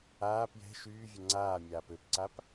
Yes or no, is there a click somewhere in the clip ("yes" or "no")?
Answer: yes